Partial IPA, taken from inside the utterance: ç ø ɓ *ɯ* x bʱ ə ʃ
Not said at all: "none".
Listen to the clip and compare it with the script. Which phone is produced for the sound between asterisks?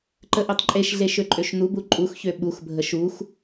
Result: u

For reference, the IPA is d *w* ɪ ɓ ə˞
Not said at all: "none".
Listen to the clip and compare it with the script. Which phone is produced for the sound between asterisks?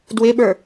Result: w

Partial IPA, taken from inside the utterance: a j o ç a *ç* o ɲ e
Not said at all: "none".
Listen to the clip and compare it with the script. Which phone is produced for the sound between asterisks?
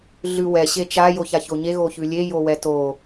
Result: ç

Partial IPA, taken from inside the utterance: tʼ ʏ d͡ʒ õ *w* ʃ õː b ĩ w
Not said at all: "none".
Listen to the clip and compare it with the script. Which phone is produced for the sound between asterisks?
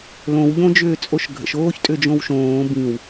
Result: w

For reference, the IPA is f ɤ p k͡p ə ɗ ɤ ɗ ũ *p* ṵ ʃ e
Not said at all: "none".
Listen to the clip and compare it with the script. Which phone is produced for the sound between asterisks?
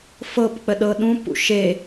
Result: p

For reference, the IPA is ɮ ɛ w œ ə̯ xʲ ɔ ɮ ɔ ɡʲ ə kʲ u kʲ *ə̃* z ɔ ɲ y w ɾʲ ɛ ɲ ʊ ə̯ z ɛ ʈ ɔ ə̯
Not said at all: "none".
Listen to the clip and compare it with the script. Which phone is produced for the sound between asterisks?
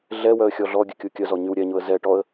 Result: ə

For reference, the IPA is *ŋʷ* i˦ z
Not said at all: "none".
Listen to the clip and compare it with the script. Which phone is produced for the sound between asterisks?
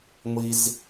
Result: ŋʷ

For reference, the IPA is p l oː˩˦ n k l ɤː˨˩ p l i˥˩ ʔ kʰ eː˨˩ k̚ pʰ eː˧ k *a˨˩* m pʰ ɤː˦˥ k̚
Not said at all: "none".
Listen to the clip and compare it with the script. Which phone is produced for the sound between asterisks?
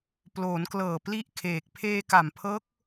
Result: a˨˩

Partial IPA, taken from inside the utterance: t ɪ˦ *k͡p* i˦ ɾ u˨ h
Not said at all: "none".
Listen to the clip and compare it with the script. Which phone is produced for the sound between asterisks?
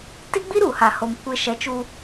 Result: ɡ͡b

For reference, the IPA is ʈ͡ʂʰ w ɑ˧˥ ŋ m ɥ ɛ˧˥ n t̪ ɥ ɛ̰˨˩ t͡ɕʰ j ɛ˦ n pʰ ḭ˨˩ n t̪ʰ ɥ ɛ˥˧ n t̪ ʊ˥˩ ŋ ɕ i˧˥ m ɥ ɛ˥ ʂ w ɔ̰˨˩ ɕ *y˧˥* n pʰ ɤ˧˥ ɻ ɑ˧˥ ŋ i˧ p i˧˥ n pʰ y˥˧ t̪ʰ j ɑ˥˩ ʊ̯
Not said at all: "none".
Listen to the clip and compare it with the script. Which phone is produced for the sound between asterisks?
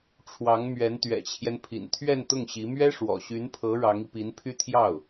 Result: y˧˥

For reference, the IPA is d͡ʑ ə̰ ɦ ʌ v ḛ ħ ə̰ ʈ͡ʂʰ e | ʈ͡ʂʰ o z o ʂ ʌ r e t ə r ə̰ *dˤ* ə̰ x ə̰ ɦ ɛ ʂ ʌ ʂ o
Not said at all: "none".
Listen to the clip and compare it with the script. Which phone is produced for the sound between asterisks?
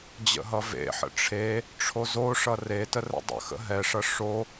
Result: dˤ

